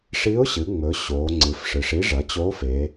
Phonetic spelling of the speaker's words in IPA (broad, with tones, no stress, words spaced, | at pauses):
ʂi˧˥ʊ̯ɕɨ˩˧ŋ͡mɵ˩˧ ɕoː˩˧ ŋ͡ǀɨ˩˥fʂɨ˩˧ʂ i˧˥ʐɐ˩˥t͡ɕoː˧˥f e˩˧